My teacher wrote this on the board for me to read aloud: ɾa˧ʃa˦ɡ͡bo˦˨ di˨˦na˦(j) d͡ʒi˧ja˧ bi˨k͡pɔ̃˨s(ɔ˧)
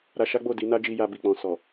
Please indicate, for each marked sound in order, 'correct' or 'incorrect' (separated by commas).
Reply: incorrect, incorrect